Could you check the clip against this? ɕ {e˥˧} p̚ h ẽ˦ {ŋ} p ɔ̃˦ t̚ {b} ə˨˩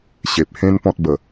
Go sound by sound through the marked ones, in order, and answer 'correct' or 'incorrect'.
incorrect, incorrect, correct

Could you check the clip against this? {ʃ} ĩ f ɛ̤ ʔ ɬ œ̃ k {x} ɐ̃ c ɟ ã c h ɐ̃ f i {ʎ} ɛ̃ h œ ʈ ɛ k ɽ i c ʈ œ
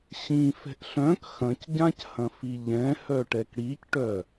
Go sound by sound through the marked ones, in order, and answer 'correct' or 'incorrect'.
incorrect, correct, correct

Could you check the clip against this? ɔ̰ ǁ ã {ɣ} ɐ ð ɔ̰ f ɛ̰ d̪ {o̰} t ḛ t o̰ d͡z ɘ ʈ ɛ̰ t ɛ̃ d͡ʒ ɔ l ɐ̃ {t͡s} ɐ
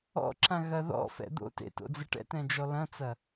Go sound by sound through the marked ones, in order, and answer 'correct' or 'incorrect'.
correct, correct, correct

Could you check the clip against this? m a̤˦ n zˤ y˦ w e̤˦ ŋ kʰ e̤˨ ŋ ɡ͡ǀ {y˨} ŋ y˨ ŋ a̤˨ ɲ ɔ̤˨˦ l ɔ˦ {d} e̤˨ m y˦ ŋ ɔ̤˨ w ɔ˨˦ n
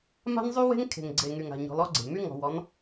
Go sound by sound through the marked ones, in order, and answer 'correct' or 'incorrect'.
incorrect, incorrect

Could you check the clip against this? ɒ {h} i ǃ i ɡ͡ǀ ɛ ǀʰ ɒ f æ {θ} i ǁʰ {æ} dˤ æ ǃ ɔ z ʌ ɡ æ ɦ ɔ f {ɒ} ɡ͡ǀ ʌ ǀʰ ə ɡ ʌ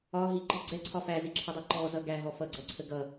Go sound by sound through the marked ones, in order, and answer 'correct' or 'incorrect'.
incorrect, incorrect, incorrect, incorrect

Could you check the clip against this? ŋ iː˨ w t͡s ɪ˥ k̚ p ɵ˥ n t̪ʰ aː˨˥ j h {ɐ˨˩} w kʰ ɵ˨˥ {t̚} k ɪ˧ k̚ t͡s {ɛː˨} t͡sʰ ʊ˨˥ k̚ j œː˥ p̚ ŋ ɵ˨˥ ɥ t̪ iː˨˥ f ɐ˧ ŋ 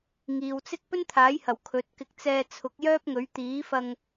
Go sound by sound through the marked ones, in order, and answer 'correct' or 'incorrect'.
correct, correct, incorrect

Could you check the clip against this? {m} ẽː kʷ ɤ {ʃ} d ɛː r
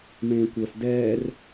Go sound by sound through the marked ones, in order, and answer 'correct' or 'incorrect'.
correct, incorrect

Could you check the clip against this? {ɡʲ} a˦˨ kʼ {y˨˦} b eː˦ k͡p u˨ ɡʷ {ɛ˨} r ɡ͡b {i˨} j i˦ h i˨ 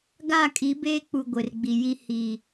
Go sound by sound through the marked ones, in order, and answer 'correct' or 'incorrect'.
incorrect, incorrect, incorrect, correct

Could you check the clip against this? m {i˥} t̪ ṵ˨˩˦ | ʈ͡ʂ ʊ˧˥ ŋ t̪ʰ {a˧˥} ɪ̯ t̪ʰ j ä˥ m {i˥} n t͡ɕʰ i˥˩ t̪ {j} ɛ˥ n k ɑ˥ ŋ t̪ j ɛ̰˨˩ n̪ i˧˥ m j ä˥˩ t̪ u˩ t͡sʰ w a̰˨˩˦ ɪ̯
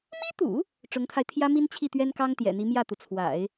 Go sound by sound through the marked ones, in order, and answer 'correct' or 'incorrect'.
correct, incorrect, correct, incorrect

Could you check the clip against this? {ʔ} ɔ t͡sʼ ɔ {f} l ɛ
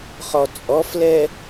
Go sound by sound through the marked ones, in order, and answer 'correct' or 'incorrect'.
incorrect, correct

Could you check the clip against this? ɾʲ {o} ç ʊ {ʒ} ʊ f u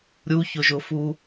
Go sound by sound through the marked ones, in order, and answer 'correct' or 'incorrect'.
incorrect, correct

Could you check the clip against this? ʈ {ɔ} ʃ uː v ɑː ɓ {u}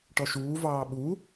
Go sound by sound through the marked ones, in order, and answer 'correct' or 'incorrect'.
correct, correct

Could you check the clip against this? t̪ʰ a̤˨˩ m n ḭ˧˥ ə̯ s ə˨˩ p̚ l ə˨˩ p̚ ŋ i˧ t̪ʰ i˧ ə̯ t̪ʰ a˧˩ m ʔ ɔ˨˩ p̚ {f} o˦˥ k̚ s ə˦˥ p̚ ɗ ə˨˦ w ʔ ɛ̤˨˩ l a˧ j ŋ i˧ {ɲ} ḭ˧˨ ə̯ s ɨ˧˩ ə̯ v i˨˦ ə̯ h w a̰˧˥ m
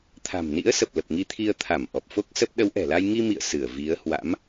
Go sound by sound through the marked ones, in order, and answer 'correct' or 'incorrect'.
correct, incorrect

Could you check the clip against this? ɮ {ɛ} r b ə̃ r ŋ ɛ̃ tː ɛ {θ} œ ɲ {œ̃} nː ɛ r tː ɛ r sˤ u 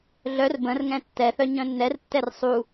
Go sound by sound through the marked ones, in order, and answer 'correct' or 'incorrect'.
incorrect, correct, correct

